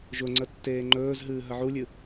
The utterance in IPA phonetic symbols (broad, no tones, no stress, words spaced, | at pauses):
ʒʊŋ͡ǀə tːeːŋ͡ǃɵːzɦɨː ɦəʕulʲɨ